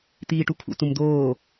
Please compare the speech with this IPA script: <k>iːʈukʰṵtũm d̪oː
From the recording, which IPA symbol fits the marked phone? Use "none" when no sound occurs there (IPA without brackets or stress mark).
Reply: t̪